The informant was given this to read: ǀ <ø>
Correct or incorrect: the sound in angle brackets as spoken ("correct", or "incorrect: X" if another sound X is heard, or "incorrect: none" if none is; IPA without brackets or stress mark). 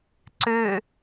correct